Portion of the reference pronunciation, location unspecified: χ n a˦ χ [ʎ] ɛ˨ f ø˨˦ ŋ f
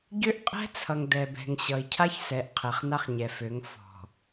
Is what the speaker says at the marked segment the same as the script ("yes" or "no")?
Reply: no